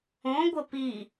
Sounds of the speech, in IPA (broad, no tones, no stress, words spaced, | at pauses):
õɡʷə pi